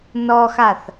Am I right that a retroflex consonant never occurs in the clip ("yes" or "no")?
yes